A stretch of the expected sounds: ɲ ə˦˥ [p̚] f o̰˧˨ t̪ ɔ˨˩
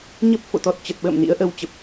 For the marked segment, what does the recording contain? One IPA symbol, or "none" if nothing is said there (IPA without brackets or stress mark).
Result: p̚